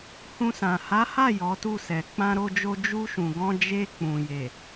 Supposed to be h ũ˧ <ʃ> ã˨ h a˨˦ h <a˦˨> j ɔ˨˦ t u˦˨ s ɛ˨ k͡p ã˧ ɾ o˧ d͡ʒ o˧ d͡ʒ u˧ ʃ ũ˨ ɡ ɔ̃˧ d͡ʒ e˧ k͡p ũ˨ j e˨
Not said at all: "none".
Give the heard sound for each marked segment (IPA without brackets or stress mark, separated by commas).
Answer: s, a˦˨